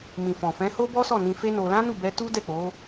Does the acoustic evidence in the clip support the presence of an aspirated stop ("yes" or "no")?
no